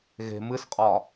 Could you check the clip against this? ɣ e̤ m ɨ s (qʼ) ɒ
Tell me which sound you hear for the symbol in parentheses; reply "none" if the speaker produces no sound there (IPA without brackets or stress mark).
qʼ